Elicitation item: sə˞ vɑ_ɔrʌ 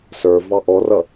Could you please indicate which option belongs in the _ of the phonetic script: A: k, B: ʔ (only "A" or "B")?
B